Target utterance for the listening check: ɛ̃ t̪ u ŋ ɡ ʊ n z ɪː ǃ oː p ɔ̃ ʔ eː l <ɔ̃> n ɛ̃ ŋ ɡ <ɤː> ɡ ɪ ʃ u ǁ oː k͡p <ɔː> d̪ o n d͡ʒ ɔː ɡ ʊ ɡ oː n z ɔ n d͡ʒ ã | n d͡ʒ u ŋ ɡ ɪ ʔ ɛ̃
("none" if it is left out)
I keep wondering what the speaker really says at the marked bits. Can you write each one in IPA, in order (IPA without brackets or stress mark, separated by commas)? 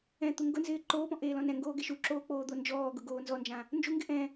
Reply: ɔ̃, oː, oː